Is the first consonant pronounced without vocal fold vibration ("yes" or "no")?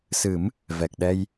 yes